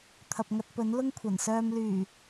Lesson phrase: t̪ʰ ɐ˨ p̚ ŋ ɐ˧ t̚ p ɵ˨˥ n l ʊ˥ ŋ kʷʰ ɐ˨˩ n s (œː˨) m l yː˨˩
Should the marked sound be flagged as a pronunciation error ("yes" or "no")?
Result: yes